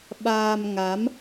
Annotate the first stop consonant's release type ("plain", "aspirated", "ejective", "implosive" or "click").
implosive